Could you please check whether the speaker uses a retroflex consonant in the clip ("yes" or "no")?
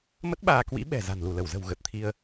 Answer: no